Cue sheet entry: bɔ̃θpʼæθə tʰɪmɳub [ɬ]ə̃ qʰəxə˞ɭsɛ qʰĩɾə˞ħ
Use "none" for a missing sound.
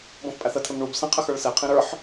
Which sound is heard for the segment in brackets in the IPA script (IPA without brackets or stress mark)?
s